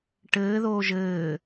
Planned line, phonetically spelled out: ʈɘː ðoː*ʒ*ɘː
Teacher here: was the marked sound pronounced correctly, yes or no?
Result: yes